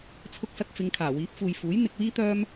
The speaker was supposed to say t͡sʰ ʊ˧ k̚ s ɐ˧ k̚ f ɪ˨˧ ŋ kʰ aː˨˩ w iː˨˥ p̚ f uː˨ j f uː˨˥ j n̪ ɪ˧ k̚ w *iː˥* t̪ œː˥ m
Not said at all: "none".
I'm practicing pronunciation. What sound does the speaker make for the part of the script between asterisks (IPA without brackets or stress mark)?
iː˥